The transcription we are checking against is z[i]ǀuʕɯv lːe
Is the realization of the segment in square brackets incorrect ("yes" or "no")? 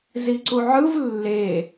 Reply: no